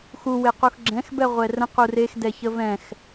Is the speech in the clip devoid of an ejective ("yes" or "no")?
yes